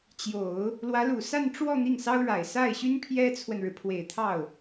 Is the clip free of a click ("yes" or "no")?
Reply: yes